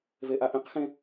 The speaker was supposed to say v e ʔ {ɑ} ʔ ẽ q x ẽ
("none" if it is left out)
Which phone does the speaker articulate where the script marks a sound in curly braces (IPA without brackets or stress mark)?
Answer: a